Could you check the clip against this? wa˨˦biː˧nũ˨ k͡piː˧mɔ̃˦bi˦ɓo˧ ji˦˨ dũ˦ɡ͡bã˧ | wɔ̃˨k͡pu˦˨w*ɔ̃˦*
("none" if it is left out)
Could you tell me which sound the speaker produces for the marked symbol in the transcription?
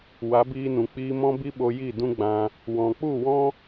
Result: ɔ̃˦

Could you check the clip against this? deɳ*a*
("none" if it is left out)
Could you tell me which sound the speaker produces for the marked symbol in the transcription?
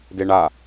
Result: a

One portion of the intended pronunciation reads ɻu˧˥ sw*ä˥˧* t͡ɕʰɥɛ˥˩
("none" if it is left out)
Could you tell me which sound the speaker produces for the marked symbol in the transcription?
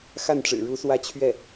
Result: ä˥˧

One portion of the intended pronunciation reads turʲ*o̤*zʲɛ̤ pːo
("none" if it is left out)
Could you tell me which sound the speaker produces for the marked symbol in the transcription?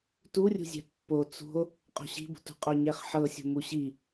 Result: ṳ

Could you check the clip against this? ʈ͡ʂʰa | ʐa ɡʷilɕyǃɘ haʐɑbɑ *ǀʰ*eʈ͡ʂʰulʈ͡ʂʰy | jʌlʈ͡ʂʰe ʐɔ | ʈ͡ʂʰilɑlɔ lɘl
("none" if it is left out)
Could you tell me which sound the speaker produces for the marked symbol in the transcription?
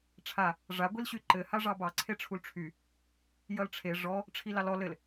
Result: ǀʰ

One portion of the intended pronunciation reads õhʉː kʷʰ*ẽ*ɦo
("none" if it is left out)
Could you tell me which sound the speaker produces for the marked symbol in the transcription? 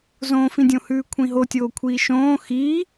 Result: ĩ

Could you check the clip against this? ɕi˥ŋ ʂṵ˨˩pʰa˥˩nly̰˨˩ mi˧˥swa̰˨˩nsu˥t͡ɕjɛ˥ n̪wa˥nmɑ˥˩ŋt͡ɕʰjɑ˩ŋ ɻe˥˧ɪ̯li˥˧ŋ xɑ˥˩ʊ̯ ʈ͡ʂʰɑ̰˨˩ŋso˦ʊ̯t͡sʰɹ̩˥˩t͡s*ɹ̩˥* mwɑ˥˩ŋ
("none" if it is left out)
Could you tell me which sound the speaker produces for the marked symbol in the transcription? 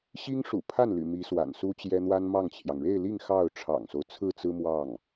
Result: ɹ̩˥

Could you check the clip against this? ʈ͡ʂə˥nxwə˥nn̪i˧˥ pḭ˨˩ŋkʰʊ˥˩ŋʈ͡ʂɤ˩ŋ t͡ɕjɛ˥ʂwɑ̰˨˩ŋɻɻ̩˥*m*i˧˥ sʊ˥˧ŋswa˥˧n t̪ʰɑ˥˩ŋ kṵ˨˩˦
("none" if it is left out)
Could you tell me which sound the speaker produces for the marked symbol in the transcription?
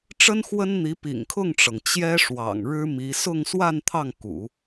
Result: m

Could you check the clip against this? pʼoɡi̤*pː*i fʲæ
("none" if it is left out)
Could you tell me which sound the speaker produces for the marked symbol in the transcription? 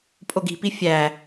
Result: p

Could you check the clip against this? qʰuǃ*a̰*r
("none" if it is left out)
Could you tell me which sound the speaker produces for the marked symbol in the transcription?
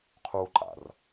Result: a̰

